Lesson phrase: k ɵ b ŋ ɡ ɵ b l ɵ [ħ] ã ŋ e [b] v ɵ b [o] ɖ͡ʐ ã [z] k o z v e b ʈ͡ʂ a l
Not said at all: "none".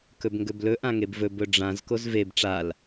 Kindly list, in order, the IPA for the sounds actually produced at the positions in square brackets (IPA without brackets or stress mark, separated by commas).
ʔ, b, ɵ, z